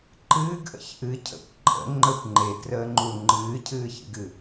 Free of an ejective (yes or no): no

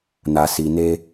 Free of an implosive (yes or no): yes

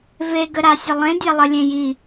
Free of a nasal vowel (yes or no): no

